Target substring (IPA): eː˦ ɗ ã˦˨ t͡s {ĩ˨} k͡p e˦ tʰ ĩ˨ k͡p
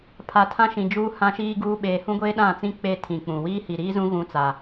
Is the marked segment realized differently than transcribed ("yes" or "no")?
yes